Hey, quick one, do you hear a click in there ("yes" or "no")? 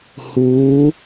no